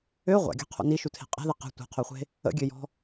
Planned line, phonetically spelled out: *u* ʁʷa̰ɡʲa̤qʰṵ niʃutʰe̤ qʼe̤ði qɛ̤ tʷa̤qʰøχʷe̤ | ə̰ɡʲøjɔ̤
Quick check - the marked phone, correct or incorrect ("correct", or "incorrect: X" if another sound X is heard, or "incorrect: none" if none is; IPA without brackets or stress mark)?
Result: incorrect: ø